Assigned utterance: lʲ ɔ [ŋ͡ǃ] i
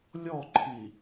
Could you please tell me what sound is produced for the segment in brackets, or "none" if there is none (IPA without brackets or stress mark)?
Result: ǃʰ